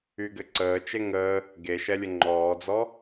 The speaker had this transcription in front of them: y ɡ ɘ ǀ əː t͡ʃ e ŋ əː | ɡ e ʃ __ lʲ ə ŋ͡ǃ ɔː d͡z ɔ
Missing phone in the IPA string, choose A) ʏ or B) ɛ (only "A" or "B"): B